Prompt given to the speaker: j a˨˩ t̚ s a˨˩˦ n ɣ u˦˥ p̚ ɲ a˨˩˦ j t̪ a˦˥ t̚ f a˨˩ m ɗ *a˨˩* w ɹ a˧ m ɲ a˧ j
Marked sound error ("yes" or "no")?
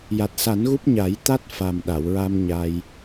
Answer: yes